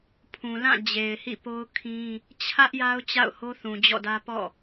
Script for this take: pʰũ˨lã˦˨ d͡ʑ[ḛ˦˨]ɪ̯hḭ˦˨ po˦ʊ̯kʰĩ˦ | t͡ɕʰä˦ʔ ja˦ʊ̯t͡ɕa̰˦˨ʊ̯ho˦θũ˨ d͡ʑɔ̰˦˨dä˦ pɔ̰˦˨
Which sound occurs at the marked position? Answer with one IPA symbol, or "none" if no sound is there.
e˨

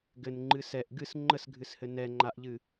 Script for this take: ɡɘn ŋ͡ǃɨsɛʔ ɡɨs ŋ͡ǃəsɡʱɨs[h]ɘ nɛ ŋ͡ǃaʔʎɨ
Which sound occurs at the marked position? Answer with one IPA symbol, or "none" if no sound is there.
h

